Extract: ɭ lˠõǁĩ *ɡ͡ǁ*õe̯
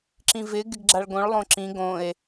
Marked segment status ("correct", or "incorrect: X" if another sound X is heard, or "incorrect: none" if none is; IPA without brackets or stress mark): incorrect: ɡ